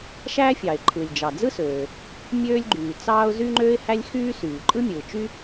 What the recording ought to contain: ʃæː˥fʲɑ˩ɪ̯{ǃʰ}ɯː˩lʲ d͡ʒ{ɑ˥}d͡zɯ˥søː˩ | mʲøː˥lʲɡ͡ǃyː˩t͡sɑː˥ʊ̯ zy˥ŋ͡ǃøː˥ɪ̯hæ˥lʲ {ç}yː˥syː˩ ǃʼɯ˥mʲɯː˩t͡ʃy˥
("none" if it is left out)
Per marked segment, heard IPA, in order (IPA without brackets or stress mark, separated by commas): ǃʰ, ɑ˩, x